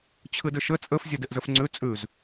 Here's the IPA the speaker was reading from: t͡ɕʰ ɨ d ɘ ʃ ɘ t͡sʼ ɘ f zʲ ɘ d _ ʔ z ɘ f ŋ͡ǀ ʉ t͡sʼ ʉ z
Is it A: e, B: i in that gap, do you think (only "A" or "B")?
A